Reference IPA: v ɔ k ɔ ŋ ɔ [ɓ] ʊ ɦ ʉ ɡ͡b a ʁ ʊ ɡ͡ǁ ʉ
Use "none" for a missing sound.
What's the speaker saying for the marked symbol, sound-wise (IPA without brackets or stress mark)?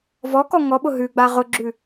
ɓ